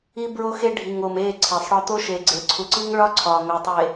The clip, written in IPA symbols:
i˦ bɹo˦xe˦ ɖʱi˨ŋ o˨me˦˨ ǀʰe˨sˤɽɒ˦ t̪o˦ʃe˨ ɡ͡ǀe˨ǀʰu˨ǀi˦ŋɭɒ˦ ǀʰɒ˨ŋo˨tˤe˨

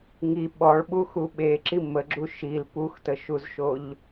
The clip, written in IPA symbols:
ŋi ɓɔɭɓuxu ɓeǁi məɡ͡ǁu ʃil puxtəʃuzʃoʎ

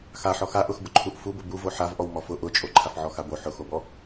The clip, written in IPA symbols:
xaħɔ xaʔʊxbʊǃʰuʔ fubʊ bu voħavʔɔw mɔfʊ ʔʊt͡ʃʼo ǃʰafʕɔxabo ħʊxobɔ

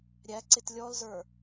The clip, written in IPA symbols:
ɾʲæ ǀɪtlʲɔlzə˞

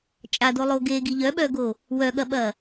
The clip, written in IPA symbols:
t͡ʃʼadolˠo ɡeɡi ʎœɓœɡo | wœɠɐɓɐ

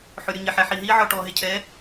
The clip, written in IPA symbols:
ħʊ˨ɾʲʊ˨ɲɪ˨ħɛ˨ ħi˨ɦi˦ʕɔ˧ ʈɔ˨ ɦɪ˧cʰɛ˨˦

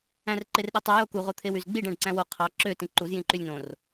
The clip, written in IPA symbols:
æ̃rǃerɗetˤø joku ʁot̪ʰewyzɡ͡biɖ æ̃ɖǀæ̃wo qʰɑ ǁø tĩǃuz jĩǃylʲnõr

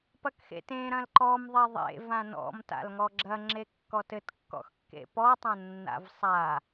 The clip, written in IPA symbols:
pɐkxḛtẽ ɾɐ̃lǃɔm ðˤeðˤḛ vãnɔ̰m ta̰lŋɔɡ͡ǁɐ ŋ͡ǁekːɔtɘt kːɔ̰xkːḛpɔ tˤɐ̃nːa̰vsˤa

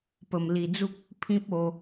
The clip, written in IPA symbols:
pə˧mli˧d͡zu˦k̚ | pʰĩ˦p̚o˧

